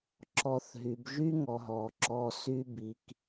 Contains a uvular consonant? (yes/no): no